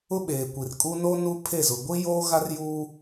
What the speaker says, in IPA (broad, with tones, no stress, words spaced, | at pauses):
ʊ˦ ɓeː˨kʷi˨rkʼu˦ no˦ nu˦pʰe˦˨zʊ˨ ɡʷi˦joː˦ɣa˦rjuː˦